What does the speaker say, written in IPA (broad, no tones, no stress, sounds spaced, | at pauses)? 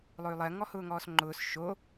lˠ ʊ y̯ lˠ ɜ ŋ ɔ h ʊː ŋ ɔː s ŋ͡ǃ ʊː s ʃ o